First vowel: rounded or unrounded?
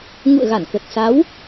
rounded